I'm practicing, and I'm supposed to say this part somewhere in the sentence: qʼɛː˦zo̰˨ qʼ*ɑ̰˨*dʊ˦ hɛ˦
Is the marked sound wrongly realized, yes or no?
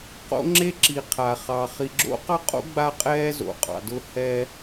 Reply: no